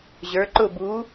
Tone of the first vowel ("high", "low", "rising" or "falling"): rising